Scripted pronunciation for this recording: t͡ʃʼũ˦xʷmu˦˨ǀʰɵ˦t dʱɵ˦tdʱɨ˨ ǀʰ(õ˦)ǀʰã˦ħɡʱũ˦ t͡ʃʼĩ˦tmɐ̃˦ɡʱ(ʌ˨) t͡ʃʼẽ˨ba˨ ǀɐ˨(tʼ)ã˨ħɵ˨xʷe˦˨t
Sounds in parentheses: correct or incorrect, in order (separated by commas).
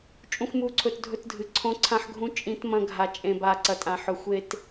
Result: correct, incorrect, correct